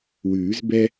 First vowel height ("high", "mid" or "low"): high